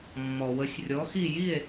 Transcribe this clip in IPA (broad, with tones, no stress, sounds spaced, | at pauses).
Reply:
mː ɔ˩ w ə˩˥ sʲ rʲ ɔ˩˥ x i˥˨ j i˥˨ e̯